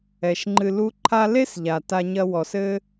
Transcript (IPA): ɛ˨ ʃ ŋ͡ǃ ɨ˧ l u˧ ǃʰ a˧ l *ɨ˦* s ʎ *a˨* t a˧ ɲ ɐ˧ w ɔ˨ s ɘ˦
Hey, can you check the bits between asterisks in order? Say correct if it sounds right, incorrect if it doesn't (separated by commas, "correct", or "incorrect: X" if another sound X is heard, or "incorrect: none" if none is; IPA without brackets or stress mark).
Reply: incorrect: e˦, correct